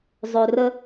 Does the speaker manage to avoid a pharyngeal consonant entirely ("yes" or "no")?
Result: yes